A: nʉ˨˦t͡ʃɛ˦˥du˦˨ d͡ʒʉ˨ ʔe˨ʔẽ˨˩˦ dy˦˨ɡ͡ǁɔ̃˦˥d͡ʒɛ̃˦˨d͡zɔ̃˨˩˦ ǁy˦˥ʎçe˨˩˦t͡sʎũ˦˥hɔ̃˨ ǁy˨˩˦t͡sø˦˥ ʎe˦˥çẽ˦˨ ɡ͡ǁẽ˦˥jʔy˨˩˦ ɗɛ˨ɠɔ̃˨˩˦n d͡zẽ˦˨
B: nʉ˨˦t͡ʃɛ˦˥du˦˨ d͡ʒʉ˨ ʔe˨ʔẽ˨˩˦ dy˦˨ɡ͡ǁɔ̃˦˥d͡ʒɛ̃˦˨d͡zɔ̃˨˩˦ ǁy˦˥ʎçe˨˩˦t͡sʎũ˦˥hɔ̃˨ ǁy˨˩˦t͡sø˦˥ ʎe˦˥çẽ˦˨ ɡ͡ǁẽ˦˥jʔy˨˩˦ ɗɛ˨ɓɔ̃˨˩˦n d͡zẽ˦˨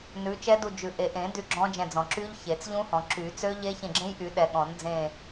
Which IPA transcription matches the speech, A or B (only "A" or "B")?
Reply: A